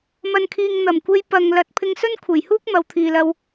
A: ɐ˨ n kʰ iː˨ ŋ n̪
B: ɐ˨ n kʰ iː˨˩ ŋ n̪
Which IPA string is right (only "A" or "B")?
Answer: A